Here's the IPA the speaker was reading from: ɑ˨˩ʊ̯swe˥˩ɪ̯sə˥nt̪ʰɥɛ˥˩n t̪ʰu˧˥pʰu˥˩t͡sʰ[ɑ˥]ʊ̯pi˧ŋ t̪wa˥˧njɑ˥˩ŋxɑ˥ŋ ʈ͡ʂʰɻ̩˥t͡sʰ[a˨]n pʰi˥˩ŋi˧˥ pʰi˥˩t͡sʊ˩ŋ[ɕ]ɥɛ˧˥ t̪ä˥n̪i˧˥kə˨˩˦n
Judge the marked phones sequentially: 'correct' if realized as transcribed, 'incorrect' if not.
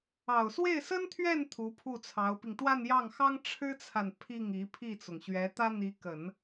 incorrect: ɑ˧˥, correct, correct

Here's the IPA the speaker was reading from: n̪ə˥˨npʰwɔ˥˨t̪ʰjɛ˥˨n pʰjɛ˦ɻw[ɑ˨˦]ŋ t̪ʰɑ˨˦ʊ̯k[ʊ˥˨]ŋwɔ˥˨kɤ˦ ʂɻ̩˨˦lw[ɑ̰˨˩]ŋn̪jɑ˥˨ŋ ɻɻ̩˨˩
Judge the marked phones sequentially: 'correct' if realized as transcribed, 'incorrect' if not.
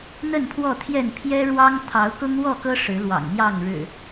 incorrect: ɑ˦, incorrect: ʊ˦, correct

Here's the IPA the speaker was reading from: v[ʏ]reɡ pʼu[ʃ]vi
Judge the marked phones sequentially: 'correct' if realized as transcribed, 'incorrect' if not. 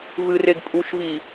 incorrect: ɨ, correct

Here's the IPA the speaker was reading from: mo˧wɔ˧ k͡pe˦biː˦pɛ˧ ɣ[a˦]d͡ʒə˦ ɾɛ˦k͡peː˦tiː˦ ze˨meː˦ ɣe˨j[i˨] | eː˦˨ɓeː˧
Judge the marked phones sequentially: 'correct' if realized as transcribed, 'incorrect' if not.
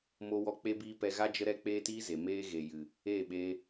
correct, incorrect: ɨ˨

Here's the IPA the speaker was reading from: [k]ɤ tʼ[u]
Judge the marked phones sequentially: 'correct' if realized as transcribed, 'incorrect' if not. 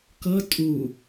correct, correct

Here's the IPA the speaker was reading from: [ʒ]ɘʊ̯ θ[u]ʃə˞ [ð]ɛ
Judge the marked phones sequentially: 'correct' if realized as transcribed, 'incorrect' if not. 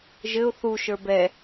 correct, correct, incorrect: b

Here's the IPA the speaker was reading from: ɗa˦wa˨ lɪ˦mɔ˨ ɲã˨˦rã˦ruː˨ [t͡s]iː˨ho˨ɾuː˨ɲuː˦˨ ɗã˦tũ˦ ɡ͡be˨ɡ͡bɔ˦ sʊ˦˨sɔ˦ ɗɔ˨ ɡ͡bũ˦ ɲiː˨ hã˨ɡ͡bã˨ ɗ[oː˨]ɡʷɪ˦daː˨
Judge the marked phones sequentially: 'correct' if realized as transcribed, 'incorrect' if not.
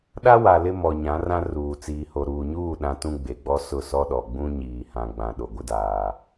correct, incorrect: o˨

